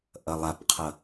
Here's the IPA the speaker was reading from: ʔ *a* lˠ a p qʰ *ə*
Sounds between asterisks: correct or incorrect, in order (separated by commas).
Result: incorrect, incorrect